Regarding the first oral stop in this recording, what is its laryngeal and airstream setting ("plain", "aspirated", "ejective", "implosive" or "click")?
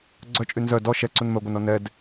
click